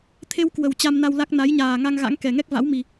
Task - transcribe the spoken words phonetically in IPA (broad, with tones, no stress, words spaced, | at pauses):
t̪ʰe˧wkwə˨˩w t͡ɕa˧mna˧wla˦˥k̚ na˨˦jɲaː˨˩ ŋa˧ŋɣa̰˧˥ŋkɛ˨˩ ŋɛ˦˥k̚va̰˧˥wmi˨˩